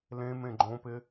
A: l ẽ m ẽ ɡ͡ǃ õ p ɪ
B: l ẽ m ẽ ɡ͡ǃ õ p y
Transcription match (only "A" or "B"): A